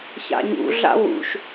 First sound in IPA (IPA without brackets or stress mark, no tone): ç